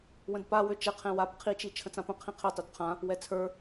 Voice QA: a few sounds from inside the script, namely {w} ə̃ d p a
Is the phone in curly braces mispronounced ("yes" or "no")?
no